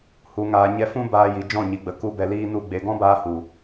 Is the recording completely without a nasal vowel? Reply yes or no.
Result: no